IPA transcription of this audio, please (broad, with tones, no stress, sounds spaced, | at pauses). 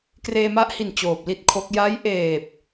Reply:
k r eː˧ m a˦˥ ʔ h i˨˩ n t͡ɕ oː˨˩ p̚ l i˥˩ t̚ kʰ o˦˥ k̚ j a˦˥ j ʔ eː˨˩ p̚